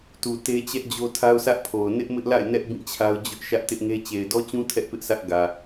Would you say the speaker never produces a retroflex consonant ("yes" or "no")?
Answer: yes